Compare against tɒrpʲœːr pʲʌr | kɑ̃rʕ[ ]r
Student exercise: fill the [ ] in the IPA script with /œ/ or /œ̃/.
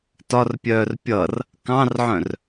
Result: œ̃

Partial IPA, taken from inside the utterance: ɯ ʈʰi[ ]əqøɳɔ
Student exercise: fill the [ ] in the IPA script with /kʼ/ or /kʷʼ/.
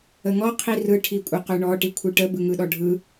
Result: kʷʼ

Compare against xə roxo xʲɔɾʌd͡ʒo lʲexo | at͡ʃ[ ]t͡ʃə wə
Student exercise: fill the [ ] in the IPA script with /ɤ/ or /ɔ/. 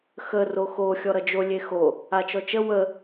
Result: ɔ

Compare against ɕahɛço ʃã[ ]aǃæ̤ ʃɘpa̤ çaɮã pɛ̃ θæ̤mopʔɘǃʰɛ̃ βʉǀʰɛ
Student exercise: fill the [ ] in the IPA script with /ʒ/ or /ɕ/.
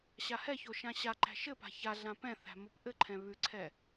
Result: ɕ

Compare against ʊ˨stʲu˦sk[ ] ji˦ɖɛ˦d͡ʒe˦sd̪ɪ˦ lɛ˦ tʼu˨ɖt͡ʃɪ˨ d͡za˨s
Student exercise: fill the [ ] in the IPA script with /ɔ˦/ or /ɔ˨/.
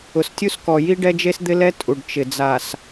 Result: ɔ˨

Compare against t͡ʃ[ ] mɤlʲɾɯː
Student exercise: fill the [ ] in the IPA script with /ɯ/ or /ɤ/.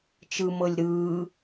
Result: ɯ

